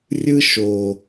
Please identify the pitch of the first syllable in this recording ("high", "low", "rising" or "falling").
high